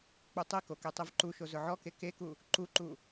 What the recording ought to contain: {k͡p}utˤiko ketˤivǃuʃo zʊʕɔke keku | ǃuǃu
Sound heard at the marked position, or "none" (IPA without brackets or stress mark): k͡p